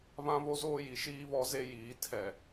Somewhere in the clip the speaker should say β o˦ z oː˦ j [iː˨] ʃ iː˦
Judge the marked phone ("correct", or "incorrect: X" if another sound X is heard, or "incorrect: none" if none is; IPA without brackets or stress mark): incorrect: i˨